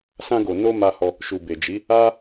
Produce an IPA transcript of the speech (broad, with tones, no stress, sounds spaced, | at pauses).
s ã˧ ɡ o˨ n o˧ m a˧ h ɔ˧ | ʃ u˨ b e˨ d͡ʒ i˨˦ | a˦